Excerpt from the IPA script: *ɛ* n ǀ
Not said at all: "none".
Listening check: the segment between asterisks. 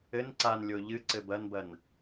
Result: ɘ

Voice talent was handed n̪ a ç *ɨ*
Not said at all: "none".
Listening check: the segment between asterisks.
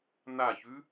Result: ʉ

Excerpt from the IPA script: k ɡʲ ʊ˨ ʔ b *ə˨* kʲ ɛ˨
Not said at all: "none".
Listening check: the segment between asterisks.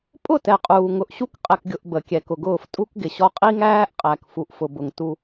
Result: ə˨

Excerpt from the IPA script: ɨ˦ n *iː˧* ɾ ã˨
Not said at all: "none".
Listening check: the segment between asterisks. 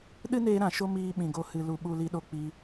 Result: eː˧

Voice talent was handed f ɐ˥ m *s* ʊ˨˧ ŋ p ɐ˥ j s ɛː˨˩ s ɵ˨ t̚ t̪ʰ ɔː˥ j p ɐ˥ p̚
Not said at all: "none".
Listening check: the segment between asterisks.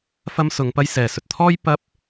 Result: s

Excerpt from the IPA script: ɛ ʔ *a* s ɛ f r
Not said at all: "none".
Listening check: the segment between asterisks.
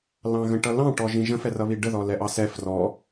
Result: ɑ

